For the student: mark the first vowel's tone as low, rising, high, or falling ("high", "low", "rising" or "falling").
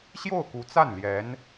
falling